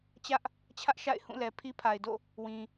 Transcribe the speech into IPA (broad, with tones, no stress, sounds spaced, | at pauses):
t͡ɕ ä˦ ʔ | t͡ɕʰ ä˦ ʔ ʃ a̰˦˨ ɪ̯ h ũ˦˨ l ɛ˨ pʰ i˦ pʰ a˨ ɪ̯ d o̰˦˨ | w ĩ˨